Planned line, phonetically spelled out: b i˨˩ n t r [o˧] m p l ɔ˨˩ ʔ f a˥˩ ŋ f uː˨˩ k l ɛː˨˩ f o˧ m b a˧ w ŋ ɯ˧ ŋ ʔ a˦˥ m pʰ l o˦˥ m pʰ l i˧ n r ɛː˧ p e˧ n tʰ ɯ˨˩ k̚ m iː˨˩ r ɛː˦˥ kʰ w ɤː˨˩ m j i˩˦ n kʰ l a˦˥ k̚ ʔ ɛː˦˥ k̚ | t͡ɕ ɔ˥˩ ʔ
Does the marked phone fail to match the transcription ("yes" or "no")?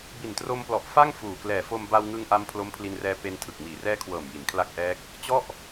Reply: no